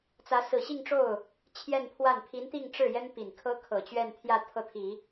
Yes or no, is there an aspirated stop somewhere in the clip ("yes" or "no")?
yes